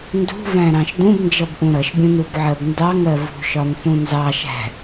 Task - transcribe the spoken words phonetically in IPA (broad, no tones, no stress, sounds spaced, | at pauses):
n d ṳ v æ̃ ɾ ɑ̃ ʃ d ũ b n d͡ʒ ʌ b ʔ ũ ɾ ʌ ʃ bʲ ũ n u b ʕ ɜ b n d ɑ ŋ ɜ v ṳ ʃ ɒ n θ ũ n z ɑ ʃ æ̤